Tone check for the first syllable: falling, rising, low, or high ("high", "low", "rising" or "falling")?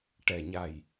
low